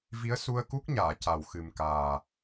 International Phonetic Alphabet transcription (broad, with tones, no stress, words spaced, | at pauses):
vi˧˥ə̯ su˧ə̯ku˦˥k̚ɲaː˨˩˨ ca˨˩w xɨ˨˩mkaː˨˩